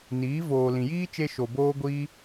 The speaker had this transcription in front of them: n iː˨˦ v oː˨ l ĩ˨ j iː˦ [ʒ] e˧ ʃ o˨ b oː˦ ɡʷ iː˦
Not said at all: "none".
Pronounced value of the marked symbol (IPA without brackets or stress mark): t͡ʃ